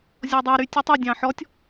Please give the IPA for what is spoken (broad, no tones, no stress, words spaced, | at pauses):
zʲɔdˤe ɾytʲɔtˤe dʲɑ̃ħɔtʲ